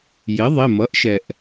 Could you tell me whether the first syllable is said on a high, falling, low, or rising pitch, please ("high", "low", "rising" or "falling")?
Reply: rising